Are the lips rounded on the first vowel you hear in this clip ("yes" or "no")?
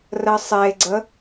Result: no